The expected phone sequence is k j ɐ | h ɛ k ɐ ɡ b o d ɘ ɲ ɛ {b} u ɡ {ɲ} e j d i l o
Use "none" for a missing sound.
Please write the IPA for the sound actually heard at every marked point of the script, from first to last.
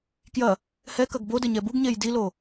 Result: b, ɲ

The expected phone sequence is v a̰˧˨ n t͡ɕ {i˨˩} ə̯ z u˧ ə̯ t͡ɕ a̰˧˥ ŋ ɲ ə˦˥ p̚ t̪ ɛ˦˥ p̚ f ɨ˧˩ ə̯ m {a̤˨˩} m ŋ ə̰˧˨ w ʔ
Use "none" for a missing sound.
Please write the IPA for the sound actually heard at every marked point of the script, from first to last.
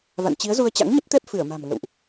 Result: i˨˦, a̤˨˩

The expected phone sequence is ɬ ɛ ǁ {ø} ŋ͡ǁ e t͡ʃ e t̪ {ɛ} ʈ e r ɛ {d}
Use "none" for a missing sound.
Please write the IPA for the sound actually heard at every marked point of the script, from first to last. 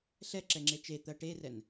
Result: ɛ, ɜ, n

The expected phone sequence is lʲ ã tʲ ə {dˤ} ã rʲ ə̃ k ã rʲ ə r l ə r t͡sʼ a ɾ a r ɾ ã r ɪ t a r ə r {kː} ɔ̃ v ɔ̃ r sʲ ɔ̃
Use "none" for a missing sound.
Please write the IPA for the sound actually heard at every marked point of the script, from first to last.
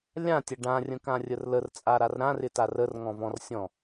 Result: ɖ, ŋ

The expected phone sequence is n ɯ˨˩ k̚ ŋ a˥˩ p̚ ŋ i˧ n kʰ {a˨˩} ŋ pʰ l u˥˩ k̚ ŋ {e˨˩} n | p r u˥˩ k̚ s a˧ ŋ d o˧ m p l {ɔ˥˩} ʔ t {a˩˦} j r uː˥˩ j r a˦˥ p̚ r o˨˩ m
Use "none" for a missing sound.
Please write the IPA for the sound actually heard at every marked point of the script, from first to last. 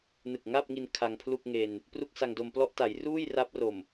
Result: a˧, e˧, ɔ˥˩, a˩˦

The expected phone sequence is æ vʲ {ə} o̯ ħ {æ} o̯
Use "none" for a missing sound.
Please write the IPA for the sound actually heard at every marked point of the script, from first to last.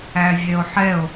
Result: ɛ, ɛ

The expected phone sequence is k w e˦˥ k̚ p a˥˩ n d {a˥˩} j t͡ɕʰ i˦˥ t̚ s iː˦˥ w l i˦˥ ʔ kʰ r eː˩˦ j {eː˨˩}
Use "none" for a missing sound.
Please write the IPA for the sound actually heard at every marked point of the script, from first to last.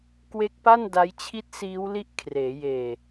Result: a˦˥, eː˨˩

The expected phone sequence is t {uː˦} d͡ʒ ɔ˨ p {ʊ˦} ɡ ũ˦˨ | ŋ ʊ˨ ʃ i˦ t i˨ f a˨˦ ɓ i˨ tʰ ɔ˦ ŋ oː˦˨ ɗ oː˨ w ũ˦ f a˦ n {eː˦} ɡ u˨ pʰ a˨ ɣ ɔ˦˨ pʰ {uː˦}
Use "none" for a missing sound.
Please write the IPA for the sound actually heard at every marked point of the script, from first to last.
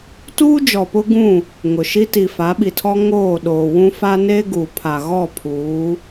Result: uː˦, ʊ˦, eː˦, uː˨˦

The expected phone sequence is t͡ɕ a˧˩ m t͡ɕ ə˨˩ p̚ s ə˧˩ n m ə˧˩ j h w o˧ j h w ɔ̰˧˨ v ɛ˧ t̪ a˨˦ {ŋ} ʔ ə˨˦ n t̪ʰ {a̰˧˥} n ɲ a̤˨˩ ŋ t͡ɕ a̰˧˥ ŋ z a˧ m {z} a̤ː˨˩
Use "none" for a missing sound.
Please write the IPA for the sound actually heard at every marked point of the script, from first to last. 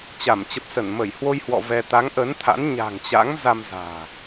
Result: ŋ, a̰˧˥, z

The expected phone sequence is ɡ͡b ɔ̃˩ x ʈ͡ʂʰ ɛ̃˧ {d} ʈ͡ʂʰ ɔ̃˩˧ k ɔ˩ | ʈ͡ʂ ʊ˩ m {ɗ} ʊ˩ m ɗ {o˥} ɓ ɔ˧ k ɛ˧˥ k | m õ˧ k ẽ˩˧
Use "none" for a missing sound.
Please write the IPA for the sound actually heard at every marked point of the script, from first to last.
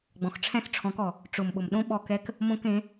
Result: θ, ɓ, õ˥

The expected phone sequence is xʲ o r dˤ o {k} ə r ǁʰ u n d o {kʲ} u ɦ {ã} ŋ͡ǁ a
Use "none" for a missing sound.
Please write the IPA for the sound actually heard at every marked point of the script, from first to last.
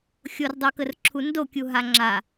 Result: k, kʲ, a

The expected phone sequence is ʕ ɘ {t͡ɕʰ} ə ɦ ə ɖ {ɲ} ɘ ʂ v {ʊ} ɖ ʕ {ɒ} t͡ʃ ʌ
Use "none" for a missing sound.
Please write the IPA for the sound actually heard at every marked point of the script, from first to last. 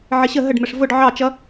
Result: ɕ, m, ʊ, ɑ

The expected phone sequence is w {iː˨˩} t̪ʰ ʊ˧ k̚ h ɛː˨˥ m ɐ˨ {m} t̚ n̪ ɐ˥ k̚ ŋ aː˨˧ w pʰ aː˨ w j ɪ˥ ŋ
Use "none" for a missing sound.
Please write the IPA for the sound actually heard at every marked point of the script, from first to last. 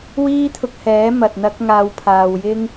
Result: iː˥, none

